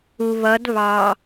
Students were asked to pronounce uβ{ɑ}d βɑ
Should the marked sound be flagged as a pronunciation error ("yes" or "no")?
yes